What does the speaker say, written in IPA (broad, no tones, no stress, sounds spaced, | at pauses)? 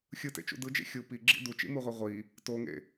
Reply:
xʲ ɯ t ḛ t͡ʃ ṵ d ɯ d͡ʒ ḛ xʲ u p i ɡ͡ǁ ḭ d u t͡ʃ ḭ m u ʁʷ e ʁʷ i | t o ŋ ḛ